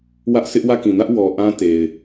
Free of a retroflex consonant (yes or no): yes